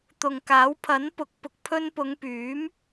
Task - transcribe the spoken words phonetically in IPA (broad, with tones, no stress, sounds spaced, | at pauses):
t̪ ʊ˨ ŋ k aː˨˥ w pʰ ɐ˨˥ n p ʊ˨˥ k̚ p ʊ˨ k̚ pʰ ɵ˧ n p ʊ˨˧ ŋ p yː˨˥ m